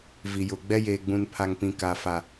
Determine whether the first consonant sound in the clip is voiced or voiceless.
voiced